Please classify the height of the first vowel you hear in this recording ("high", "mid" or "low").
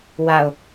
low